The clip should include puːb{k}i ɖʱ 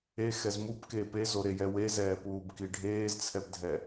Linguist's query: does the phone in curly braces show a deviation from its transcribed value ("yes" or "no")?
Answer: no